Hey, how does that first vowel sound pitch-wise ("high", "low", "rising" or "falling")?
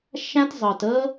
high